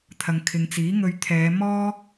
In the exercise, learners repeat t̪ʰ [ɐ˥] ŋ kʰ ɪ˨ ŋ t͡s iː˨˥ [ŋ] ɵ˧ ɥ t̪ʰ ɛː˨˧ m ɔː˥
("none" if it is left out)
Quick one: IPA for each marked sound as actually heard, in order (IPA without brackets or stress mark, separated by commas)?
ɐ˨, ŋ